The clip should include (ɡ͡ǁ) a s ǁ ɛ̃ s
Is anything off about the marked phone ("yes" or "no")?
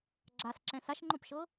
no